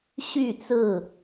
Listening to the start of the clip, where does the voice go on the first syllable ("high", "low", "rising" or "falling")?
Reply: falling